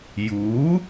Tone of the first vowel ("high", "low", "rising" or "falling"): rising